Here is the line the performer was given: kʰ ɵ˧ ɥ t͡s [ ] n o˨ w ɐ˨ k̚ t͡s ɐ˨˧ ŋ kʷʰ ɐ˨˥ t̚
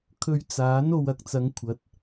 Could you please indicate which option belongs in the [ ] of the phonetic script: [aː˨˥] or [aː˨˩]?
aː˨˥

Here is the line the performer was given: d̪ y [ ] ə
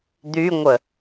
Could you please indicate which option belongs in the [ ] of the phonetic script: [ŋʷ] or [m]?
ŋʷ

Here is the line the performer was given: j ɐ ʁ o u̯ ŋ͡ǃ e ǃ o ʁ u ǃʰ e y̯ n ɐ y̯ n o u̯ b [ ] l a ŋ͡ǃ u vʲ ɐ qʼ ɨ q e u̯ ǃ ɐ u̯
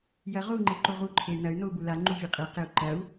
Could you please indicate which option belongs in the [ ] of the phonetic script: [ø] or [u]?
u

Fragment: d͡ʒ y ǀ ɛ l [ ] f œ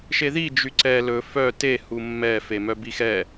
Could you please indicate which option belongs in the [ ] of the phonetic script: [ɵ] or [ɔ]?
ɵ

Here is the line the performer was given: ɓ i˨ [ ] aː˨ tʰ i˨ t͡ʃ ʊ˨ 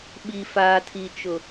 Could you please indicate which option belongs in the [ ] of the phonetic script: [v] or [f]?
f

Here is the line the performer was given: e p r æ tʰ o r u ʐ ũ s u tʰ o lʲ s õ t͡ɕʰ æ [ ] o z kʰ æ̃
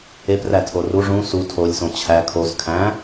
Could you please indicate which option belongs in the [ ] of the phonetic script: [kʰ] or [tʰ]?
kʰ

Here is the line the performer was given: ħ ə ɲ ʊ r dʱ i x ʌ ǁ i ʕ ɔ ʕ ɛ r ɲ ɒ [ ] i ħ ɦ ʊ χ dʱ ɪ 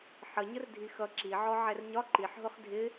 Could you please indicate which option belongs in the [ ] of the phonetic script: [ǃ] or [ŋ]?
ǃ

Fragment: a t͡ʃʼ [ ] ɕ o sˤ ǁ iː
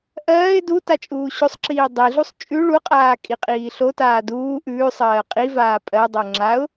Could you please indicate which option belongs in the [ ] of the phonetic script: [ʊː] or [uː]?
uː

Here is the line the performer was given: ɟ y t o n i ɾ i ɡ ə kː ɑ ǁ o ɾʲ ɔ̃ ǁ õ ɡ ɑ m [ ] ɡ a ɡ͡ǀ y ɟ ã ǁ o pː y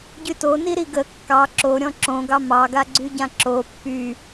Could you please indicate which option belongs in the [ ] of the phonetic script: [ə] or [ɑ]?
ɑ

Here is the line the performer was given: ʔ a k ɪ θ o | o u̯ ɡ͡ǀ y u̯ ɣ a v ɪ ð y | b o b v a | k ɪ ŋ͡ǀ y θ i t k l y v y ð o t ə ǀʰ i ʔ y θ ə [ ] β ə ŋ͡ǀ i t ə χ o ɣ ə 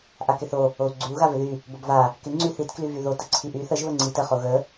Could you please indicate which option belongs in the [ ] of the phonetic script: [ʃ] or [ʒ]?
ʒ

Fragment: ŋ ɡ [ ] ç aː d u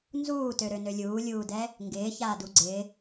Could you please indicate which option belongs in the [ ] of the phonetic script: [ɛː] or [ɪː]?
ɪː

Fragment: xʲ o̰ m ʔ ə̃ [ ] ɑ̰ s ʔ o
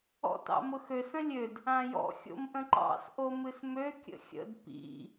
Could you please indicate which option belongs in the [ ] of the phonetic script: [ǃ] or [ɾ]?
ǃ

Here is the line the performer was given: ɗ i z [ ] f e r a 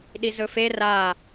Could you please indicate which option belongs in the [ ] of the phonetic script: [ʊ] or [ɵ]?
ɵ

